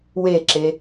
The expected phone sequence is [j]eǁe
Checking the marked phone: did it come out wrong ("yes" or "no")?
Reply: yes